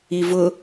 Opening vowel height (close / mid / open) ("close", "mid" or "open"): close